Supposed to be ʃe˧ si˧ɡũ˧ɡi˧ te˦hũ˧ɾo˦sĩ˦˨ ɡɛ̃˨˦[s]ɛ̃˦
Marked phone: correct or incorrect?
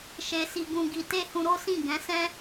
correct